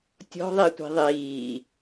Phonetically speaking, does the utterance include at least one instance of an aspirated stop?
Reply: no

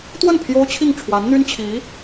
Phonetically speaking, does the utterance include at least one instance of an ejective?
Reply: no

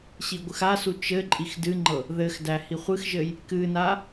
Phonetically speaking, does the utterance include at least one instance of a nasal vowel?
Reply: no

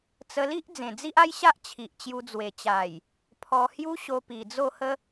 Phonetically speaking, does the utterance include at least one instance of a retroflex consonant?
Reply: no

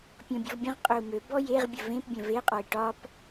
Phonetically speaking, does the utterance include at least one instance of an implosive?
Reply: no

